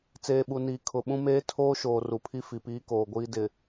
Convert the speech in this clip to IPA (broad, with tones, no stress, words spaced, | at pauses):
t͡seː˨ɓu˨niː˨ kʰʊ˨ɓũ˦meː˦ tʰoː˦ʃoː˨ ru˨pʰi˦fi˨piː˦ koː˨ɡʷiː˦dɪ˨